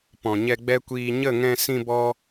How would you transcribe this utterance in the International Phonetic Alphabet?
p ɔ̃˨ ɲ ɛ˧ ɡ͡b ɛ˦ kʷ iː˧ ɲ ə˦˨ ŋ ɛ̃˧ s ĩ˧ b ɔ˦

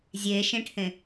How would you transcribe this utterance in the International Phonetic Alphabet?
zʲ e ʃ ẽ ʈʰ ẽ

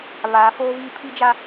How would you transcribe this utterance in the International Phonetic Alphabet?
β aː˨˦ f oː˦ v iː˦ pʰ i˦ d͡ʒ a˦

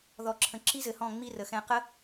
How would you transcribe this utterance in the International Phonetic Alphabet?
ð ɔ˨ ǁʰ ə̃˨ ǁ i˦ z ɘ˨ h ɔ̃˦˨ ŋ͡m i˦ r ə˨ x ɛ̃˧ q ə˦

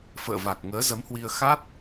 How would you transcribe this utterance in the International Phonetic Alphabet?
f ə̰ː˧˨ v a˨˩ k̚ ŋ əː˨˦ z ə˨˦ m h w i˧ ə̯ x a˦˥ t̚

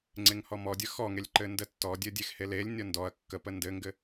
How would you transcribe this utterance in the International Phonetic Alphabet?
ŋ͡ǀ e ŋ h ɔ m ɔ dʲ ə x ɔ ŋ e lʲ ǃ ɘ n d ə tː ɔ dʲ ɘ dʲ e x h e l e lʲ nʲ ɔ n d ɔ ɐ̯ kː ə p ə n d ɘ ŋ ɡ ɘ

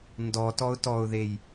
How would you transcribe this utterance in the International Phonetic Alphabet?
n d ɔ t ɔ ʊ̯ t ɔ ʊ̯ ð e j

